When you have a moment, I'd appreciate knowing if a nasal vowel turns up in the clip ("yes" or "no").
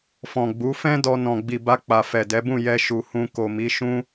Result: yes